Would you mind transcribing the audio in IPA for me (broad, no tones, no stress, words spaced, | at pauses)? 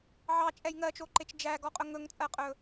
ʕɑt͡ʃʼɛj ŋɜt͡ʃoǃet͡ʃ d͡ʒæɡɔqʼɵ ŋɵŋt͡sʼɜqʼɵ